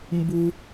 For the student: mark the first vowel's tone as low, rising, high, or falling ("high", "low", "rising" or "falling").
high